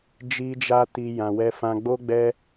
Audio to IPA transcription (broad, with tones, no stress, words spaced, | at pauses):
d͡ʒi˧d͡ʒa˧ ti˧ jã˧wɛ˦fã˦ ɡ͡bo˦ɡ͡bɛ˦